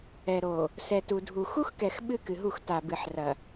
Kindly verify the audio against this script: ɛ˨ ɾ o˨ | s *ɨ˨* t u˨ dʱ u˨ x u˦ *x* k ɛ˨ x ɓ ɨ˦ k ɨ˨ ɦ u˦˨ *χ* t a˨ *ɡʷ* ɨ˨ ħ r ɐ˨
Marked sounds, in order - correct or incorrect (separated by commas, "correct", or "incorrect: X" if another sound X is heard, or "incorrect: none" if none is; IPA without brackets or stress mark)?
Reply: incorrect: ɛ˨, correct, incorrect: x, incorrect: b